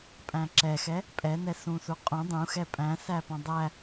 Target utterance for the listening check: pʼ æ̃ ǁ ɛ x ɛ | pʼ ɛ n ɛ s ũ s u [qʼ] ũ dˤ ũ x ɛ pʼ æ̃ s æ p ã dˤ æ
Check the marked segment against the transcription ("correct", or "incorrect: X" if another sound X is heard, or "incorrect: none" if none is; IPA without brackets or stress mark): correct